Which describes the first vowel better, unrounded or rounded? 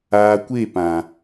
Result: unrounded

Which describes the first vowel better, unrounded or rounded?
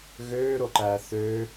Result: rounded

